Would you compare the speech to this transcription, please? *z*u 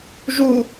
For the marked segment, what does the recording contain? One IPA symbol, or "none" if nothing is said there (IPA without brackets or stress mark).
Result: ʒ